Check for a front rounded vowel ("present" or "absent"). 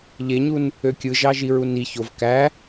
present